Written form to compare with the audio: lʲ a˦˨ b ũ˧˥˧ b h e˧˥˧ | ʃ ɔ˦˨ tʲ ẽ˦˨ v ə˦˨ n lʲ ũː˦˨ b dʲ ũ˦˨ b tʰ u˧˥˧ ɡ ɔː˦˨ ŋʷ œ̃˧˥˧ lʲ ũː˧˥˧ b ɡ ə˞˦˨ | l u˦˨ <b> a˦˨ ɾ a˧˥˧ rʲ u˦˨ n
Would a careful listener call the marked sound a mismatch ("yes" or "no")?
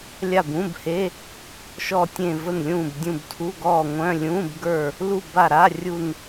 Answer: no